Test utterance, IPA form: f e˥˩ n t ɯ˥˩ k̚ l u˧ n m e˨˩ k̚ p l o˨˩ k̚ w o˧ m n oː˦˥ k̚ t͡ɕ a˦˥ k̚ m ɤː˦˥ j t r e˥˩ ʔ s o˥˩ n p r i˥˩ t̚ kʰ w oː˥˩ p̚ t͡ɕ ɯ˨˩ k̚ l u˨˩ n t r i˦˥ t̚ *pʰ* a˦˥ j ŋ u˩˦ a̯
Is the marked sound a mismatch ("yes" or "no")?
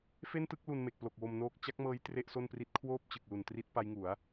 yes